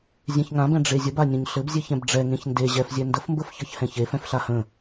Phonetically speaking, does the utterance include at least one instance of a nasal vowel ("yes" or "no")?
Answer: yes